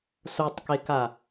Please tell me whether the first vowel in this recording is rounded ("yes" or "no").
yes